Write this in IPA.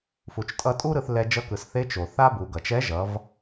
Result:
f u˩ t͡ʃ tʼ ʌ˧ tʼ u˥ ɾ ɯ˧ θ l ɛ˧ d͡ʒ ʌ˧˥ k ɯ˩ s θ e˧˥ t͡ʃ o˩ θ a˥ b u˩˧ ɡ ʌ˩ t͡ʃ ɛ˧˥ ʒ ʌ˩˧ v

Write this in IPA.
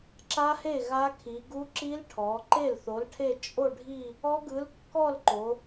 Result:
ǁ a˦˥ h e˥˩ ɣ a˦˥ kʰ i˩˧ ɡ u˦˥ ǁ i˦˥ l ʈʰ ɔ˩˧ ǃ e˥˩ l θ o˨˥ l ʈʰ e˥˧ t͡ʃʼ o˥˧ ɖʱ i˥˧ | ɔ˦˥ ɡ ɯ˨˥ l kː ɔ˥˧ l ǃ o˩˧

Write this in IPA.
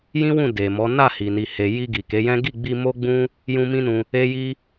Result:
j ĩ˦ w ũ˦˨ d e˨ m ɔ˨˦ n a˦˨ h i˨ n i˨ h e˨ j i˧ ɡ i˨ k e˨˦ j ɛ̃˦ ɡ i˦˨ ɡ͡b i˧ m o˦ ɡ͡b ũ˦ | j ũ˦ m ĩ˦ n ũ˧ | e˦ j i˦

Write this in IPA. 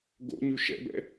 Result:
ɡ o̰ ɲ ʉ ʃ ɛ̰ b ɛ̰

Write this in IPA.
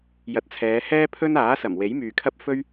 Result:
j ɐ˨˥ t̚ t͡sʰ ɛː˨˧ h ɛː˥ pʰ ɵ˥ n aː˨˥ s ɐ˨˩ m w e˨˥ j m yː˨ kʰ ɐ˥ p̚ f ɵ˥ ɥ

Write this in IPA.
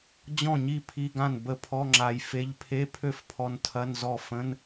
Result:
d͡ʑ ɔ̃˥˩ ɲ i˥˩ pʰ i˧˥˧ ɡ ã˥˩ n b ə˥˩ pʰ ɔ˧˥˧ ŋ͡ǁ a˧ j f e˧˥˧ ʎ pʰ e˧˥˧ pʰ ø˥˩ f pʰ ɔ˧ n tʰ ɐ˧˥˧ n z ɔ˥˩ f ə̃˧˥˧ n

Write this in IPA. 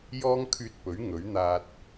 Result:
j ɔː˥ ŋ kʰ yː˧ t̚ p ɵ˨˥ ɥ ŋ ɵ˨˥ ɥ n̪ aː˧ t̚

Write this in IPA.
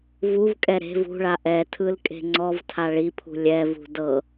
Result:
v u v kʼ ɛ ɾ e̤ v ṳ ɭ a ʔ ɛ tʰ ɯ l kʼ e̤ ŋ͡ǀ ɔ v tʰ a ɭ i pʰ ṳ lʲ ɛ v ṳ d ɤ

